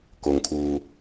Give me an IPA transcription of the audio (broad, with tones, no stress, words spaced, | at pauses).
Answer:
ko˩ŋkʰuː˩